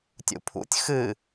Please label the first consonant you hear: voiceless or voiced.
voiceless